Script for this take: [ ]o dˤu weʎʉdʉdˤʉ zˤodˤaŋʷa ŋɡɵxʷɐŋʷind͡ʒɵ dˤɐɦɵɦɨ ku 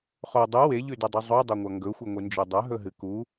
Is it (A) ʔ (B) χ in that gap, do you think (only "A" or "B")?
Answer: B